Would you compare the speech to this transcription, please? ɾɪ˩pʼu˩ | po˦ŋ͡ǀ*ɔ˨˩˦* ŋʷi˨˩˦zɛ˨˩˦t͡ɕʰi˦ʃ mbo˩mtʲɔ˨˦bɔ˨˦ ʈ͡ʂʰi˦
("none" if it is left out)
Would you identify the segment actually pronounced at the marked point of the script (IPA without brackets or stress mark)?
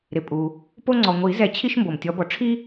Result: ɔ˩